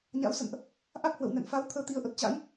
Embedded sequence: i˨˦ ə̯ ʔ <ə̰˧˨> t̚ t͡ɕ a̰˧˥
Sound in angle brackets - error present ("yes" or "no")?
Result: yes